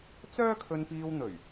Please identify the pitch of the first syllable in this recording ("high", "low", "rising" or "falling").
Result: high